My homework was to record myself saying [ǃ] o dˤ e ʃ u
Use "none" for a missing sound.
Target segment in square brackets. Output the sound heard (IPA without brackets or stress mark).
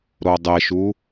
ɾ